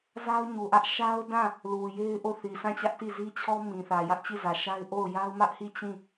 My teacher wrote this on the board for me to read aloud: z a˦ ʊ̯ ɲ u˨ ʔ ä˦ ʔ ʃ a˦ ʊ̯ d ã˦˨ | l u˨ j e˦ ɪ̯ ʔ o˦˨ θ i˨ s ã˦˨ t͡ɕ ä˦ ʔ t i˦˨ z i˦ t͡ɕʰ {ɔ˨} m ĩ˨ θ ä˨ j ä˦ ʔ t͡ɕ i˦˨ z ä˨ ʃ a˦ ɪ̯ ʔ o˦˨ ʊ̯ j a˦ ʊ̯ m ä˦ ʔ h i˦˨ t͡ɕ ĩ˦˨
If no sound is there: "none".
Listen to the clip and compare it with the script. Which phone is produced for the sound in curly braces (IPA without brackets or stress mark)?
ɔ˦